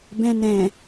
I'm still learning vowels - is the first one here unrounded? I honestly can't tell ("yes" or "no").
yes